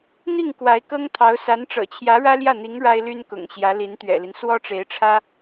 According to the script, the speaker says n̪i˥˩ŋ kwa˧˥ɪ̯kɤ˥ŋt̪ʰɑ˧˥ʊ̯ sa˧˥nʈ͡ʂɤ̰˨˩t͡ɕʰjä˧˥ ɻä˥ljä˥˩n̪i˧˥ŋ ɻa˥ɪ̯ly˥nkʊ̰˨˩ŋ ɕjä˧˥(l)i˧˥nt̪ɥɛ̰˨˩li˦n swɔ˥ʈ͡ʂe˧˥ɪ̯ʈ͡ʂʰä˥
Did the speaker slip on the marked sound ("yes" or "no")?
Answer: no